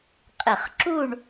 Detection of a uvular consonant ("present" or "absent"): present